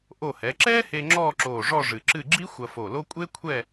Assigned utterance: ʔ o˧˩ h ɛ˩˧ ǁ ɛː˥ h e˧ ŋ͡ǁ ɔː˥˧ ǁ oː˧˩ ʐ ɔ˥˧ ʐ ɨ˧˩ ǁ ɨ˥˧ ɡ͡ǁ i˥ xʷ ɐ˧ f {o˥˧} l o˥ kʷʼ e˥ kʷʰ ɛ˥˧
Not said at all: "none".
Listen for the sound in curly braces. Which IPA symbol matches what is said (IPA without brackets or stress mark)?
o˧˩